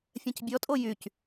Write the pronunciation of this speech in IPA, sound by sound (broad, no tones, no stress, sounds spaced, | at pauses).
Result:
fʲ ɛ̃ c bʲ ɔ tʼ o j y c